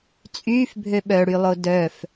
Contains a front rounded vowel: yes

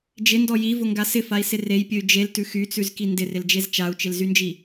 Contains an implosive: no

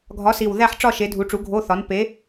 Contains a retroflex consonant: yes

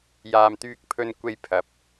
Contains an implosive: no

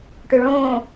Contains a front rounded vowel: yes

